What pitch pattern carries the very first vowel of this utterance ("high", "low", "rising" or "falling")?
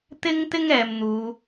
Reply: high